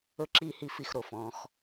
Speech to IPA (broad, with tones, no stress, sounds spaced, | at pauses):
ɵ˥ ǁ iː˥ h i˥˧ f i˥˩ x ɾ o˥˩ f ɔ̃ː˨˦ x